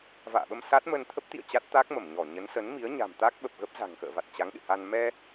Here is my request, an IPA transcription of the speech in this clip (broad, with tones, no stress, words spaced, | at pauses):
va̰ː˧˨ɓə˧m sa˦˥t̚mə˧n t̪ʰə˦˥p̚t̪ḭ˧˨ə̯ t͡ɕa˦˥t̚t̪a˦˥k̚mə˧˩mɲɔ˧˩ ɲə˨˦nsə˨˦nmi˨˦ə̯ ɲa̤˨˩mt̪a˦˥k̚ɓə˨˩p̚ ɣə˦˥p̚za̤˨˩ŋ xə̰ː˧˨va˨˩t̚t͡ɕa˨˦ŋ ɗɨ̰˧˨ha˧n mɛ˧